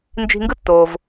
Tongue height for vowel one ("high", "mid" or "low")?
high